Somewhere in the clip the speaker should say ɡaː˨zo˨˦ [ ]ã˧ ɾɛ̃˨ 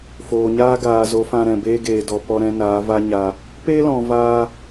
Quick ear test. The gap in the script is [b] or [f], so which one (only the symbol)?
f